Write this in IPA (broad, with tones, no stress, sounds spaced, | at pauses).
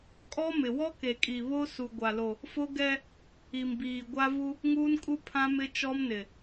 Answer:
kʼ ɔ˦ m ɪ˨ w ɔ˦ k e˨ kʼ i˨ β o˦ s u˨ ɡʷ a˨ l o˨ | f o˦ ɡ ɛ˦ | i˨ m b iː˨ ɡʷ a˦ v u˦ | ŋ uː˦ n kʼ u˦ pʰ ã˦ m ɪ˦ t͡ʃ ɔ˦ m n ɪ˨